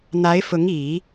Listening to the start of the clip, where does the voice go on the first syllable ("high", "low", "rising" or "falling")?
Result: rising